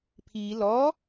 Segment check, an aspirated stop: present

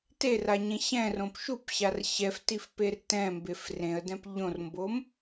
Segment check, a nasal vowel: present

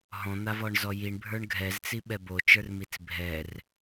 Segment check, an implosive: present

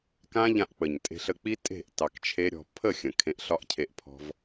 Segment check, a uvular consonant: absent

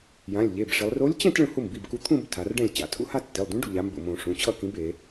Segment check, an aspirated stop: present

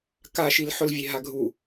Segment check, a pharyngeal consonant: present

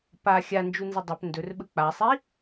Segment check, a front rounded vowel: absent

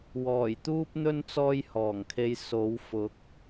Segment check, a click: absent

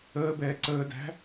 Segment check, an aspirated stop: absent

